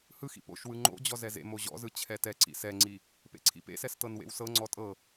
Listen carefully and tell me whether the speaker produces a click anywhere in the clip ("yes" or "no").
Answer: yes